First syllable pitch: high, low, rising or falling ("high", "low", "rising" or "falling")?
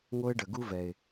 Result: high